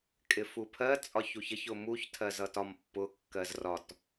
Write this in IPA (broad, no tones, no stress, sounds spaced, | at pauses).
kʼ ɪ f u pʰ ɜ t͡sʼ ɒ ç u ç ə ç ʊ m u ç tʰ ɜ z ʌ t ɒ m pː ʊ kː ɜ z r ɒ t